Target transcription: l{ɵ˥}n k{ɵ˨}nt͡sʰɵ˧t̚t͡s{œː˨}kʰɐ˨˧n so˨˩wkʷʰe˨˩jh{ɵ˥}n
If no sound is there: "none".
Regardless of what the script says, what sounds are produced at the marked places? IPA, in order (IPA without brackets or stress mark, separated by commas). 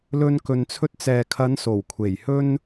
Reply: ɵ˧, ɵ˨, ɛː˨, ɵ˥